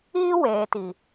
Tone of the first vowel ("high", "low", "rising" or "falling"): high